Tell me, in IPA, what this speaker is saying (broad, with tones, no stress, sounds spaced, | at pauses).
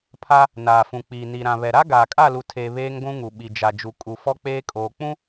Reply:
pʰ a˦ | n aː˨ f ũ˨ k͡p iː˨ n i˨ ɾ ã˨ β ɛ˨ ɾ a˦ ɡ aː˨ kʼ a˦˨ l u˨ tʰ eː˨ β eː˦ ŋ ɡʷ ũ˦ ŋ u˨ ɓ i˨ d͡ʒ a˨ d͡ʒ u˨ kʼ u˨ f ɔ˦ k͡p eː˦ kʼ oː˨ k͡p ũ˦